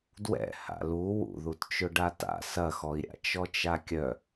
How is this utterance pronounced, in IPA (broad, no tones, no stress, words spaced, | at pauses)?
dwɛ̰ ha̰lu wṵðutt͡ʃʊ ɖata̰ sɐxɔi̯ɾʲa̰ t͡ʃɔt͡ʃakʲœ